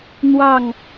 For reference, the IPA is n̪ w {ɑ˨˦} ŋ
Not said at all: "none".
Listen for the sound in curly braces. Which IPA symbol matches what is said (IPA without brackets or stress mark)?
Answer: ɑ˥˨